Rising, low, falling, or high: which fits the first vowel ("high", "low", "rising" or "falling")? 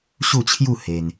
falling